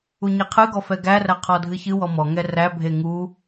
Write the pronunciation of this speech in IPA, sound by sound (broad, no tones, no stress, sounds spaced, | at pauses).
u ɲ e qʰ ɨ ɡ ɔ f ɛ ɡ æ r æ qʰ ɔ dʱ ɨ ç ɨ w ɔ m ɔ ŋ ɛ r æ bʱ e ŋ u